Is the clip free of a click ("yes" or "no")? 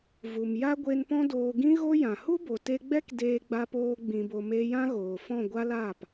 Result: yes